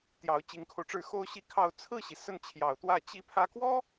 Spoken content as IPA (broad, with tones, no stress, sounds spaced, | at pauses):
t̪ j ɑ˧˥ ʊ̯ t͡ɕ i˧˥ ŋ kʰ o˧ ʊ̯ ʈ͡ʂ ɻ̩˥˩ x o˥ ʊ̯ ɕ i˥˧ kʰ ɑ˥˧ ʊ̯ t͡sʰ ɹ̩˥˩ ɕ i˩ s ə˥˩ n t͡ɕʰ j ɑ˨˩ ʊ̯ t̪ w ä˥˩ t͡ɕ i˧˥ pʰ ä˧˥ k w ɔ˥